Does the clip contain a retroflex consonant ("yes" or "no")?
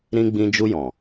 no